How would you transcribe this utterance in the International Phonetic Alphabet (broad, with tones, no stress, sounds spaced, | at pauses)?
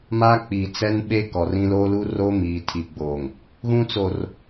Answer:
m a˦ k͡p i˨ t͡s ɛ˦ n ɓ e˦ k ɔ˨ r ĩ˦ l oː˦ l uː˦ r oː˦ m iː˨ tʰ i˨ ɡ͡b oː˨ ŋ | ɣ ũ˦ t͡s o˨ r